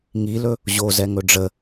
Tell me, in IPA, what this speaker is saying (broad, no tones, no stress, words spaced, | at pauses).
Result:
ŋilɵ | ʑozɛŋɵ ɖ͡ʐə